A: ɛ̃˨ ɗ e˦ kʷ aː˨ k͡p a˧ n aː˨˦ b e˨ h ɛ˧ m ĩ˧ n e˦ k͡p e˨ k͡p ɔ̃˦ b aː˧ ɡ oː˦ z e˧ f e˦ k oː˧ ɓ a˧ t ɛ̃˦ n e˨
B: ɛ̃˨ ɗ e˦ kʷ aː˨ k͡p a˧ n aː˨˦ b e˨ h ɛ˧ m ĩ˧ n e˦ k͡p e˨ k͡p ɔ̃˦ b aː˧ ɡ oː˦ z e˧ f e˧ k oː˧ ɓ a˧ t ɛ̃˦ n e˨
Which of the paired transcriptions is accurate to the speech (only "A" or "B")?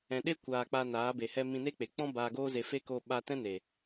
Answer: A